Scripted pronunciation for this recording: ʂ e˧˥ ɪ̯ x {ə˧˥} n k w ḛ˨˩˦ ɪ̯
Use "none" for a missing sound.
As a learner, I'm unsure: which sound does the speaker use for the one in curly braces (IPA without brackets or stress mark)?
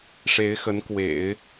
ə˧˥